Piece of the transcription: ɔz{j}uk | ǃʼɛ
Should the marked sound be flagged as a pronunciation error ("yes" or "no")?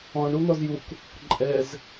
no